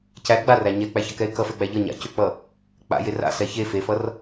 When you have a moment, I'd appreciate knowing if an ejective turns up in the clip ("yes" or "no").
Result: no